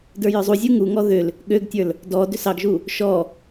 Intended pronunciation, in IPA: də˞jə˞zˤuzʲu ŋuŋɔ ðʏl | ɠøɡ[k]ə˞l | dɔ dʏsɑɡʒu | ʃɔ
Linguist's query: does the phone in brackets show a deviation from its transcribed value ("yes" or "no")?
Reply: yes